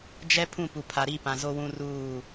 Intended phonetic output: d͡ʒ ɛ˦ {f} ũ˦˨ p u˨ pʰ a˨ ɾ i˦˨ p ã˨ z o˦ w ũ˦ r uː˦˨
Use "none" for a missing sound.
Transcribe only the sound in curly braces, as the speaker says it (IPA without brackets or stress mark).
pʰ